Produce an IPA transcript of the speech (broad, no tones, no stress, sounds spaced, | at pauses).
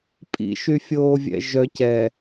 pʼ ḭ ʃ y fʲ oː vʲ ɛ̰ ʒ œ c ɛ